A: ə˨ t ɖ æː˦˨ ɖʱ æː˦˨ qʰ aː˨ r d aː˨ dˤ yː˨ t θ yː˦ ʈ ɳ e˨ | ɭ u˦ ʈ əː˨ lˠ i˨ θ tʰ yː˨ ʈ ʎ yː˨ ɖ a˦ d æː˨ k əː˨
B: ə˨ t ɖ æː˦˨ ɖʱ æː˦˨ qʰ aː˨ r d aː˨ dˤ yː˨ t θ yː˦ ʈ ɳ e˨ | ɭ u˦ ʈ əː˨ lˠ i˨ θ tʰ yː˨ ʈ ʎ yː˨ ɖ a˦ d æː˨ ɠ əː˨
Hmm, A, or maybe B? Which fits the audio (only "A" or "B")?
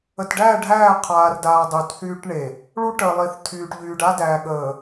B